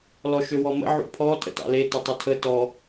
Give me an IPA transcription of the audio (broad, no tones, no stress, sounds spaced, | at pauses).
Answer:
l ɔ ʃ ø w ɔ m ə̰ ʕ ṵ pʰ ɔ tʼ ə̰ t ɑ̰ l e t ʏ tˤ u tʰ ə t ɔ